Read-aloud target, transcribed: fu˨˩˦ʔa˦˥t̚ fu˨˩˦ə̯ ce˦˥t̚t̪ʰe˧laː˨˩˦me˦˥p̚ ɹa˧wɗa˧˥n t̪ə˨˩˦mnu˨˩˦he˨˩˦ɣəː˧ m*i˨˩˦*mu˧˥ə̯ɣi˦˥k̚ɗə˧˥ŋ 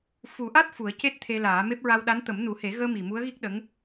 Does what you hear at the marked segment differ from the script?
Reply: yes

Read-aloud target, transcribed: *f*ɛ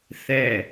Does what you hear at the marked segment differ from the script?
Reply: yes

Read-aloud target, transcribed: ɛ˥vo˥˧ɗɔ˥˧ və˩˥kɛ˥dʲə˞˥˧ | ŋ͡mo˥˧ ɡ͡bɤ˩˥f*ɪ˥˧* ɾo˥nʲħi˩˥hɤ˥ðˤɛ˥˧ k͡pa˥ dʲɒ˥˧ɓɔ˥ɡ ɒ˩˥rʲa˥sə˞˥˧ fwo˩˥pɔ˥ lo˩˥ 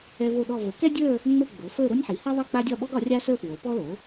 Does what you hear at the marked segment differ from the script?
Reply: yes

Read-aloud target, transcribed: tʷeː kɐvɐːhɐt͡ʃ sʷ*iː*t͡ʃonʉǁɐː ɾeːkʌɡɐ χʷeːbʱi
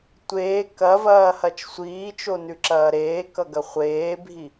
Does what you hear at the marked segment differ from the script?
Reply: no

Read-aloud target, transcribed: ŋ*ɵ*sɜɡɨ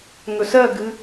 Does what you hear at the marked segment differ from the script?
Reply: no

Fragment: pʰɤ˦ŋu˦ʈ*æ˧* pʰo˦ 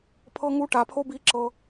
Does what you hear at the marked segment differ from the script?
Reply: yes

